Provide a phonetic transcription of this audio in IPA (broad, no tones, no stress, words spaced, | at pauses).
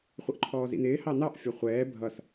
χʷəʔǃʰɔːzḭnɪː hɑnɑʔ fʲɒχʷɛː bʱʌs